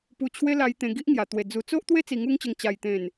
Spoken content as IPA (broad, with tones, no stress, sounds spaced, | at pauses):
p u˧ t͡ɕʰ w e˦ l a˧ j t̪ ẽ˧ ɡ i˦ ʔ ŋ j a˨˩ t̪ w e˨˩ d͡z u˨˩ t͡s o˦ ʔ t̪ w e˦ t͡s i˧ ŋ u˦ ŋ t͡ɕ ə˧ ŋ t͡ɕ a˨˩ j t̪ ẽ˨˩ n